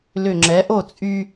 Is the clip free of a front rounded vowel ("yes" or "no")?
no